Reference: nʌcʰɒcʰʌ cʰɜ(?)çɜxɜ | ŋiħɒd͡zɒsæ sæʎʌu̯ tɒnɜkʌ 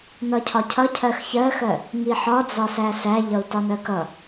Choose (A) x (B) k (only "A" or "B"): A